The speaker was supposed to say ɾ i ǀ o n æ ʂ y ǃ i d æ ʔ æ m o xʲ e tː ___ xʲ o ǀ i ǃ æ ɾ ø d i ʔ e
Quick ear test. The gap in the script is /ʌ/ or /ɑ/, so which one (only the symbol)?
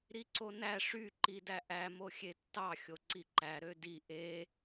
ɑ